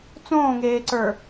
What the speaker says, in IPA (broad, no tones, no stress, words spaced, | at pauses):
t͡sõːŋeːǀə˞